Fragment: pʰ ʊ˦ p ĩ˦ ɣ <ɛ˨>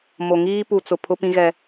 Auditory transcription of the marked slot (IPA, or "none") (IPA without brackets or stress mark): ɛ˦